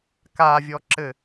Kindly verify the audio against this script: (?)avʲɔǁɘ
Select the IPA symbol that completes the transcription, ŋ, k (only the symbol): k